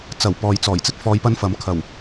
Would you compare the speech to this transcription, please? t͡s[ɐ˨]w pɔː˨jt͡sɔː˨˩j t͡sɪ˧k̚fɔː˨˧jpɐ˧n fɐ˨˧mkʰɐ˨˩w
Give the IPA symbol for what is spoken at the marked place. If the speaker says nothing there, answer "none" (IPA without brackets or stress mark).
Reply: ɐ˨˩